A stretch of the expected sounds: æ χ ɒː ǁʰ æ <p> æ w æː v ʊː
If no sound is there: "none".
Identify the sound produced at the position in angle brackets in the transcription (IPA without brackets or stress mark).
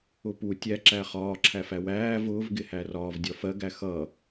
f